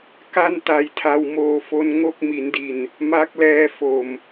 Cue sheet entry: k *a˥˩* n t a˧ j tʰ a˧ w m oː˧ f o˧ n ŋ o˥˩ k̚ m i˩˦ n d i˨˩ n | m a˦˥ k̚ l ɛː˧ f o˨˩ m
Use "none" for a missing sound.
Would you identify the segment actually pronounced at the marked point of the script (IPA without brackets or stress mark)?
a˥˩